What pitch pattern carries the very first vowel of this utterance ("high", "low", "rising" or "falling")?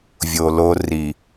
low